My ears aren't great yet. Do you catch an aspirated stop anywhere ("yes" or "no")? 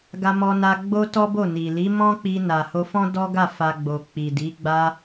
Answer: no